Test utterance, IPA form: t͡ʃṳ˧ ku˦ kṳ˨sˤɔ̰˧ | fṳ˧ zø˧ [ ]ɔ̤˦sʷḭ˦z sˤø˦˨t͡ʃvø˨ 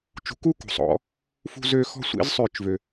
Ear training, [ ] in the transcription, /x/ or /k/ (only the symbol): x